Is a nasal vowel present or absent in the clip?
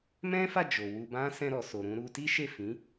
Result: present